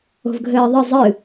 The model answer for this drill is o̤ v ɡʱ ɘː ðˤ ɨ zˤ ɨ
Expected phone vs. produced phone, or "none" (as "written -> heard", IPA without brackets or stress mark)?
none